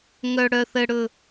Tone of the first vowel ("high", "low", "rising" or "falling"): low